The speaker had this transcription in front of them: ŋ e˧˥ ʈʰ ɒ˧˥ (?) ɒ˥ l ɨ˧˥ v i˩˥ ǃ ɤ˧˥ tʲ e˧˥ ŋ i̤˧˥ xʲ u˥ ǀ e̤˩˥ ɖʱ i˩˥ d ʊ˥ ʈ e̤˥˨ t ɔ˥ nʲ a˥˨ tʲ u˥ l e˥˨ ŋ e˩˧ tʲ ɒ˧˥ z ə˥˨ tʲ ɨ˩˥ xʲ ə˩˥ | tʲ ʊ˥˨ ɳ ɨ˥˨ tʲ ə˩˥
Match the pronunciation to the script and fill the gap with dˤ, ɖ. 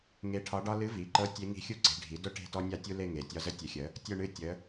ɖ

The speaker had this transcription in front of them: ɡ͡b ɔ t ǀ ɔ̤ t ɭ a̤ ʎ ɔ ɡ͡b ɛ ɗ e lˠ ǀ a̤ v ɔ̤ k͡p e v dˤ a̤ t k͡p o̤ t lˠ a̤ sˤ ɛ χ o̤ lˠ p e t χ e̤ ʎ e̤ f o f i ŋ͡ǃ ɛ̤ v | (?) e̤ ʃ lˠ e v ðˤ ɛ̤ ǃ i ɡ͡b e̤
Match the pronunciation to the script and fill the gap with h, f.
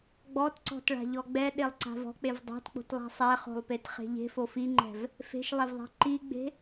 f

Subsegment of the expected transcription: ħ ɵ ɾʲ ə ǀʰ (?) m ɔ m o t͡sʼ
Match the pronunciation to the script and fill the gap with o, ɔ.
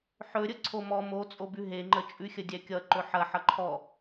o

